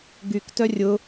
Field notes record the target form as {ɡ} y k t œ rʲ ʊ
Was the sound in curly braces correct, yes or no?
yes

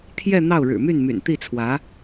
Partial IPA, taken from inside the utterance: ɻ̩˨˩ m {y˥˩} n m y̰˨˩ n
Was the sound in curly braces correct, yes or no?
yes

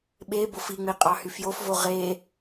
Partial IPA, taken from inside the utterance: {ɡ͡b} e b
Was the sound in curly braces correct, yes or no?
no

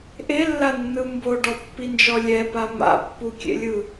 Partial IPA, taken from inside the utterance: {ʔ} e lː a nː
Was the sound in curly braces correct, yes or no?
yes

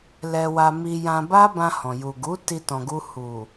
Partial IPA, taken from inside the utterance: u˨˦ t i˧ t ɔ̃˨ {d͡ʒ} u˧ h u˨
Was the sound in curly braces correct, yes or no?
no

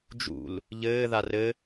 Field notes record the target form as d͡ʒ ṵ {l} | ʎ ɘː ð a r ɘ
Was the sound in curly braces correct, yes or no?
yes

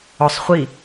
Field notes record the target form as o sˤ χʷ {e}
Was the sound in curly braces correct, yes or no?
no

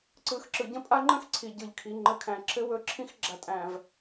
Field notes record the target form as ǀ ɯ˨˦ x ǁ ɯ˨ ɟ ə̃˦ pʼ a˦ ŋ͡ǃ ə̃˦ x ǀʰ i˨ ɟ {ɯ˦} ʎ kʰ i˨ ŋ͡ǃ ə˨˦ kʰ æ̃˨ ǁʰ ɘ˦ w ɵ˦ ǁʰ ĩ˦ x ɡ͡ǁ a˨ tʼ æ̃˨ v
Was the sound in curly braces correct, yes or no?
no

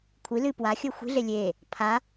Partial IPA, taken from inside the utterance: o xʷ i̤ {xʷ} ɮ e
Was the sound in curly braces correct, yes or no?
no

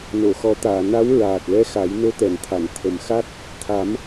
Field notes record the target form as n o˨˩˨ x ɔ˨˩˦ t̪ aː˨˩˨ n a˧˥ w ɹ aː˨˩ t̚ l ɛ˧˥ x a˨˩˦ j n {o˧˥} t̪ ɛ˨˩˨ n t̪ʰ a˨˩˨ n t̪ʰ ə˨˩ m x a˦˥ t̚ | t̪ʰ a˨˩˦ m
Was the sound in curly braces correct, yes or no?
yes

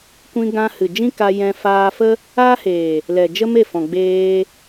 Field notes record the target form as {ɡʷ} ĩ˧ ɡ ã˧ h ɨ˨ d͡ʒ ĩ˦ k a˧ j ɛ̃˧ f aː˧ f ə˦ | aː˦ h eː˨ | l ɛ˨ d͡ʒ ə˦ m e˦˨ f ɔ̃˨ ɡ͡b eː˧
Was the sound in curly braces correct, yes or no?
no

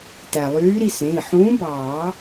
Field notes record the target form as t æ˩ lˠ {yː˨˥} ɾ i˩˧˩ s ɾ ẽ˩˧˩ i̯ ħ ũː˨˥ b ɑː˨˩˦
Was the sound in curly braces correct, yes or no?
yes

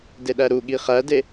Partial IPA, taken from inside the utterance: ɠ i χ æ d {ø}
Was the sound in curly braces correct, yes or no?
no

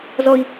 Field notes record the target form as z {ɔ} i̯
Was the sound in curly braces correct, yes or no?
yes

